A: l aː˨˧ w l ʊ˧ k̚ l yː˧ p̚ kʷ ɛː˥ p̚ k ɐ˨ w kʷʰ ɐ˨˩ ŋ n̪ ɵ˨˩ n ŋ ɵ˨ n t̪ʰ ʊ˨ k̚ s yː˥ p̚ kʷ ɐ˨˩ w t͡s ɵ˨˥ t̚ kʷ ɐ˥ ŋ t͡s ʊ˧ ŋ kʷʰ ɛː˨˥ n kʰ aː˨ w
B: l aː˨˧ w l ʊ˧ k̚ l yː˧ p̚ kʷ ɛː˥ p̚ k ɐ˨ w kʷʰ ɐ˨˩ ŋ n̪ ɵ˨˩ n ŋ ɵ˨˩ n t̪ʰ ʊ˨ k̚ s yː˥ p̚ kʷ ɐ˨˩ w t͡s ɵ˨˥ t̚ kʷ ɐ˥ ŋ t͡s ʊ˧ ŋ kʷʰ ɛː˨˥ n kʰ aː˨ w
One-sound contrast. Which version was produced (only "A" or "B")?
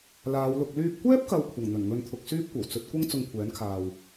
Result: A